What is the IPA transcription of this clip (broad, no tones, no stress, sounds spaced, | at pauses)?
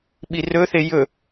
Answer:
ɓ i r ɵ θ e j ɵ